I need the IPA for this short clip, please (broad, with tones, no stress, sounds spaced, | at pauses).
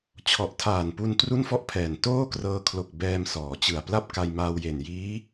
t͡ɕʰ ɔ˨˩ ʔ tʰ aː˨˩ n p u˧ n t r u˥˩ n f ɔ˥˩ ʔ pʰ ɛː˨˩ n t oː˥˩ k r ɤː˧ kʰ l o˨˩ k̚ b ɛː˧ m s ɔː˩˦ t͡ɕ ɯ˨˩ a̯ p l a˥˩ p̚ k a˧ j m aː˧ w j e˨˩ n j iː˦˥